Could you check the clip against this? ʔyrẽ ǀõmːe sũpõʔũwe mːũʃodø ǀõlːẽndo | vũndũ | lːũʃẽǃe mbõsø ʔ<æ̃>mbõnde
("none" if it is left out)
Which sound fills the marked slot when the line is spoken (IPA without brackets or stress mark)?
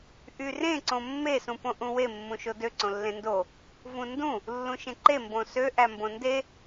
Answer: æ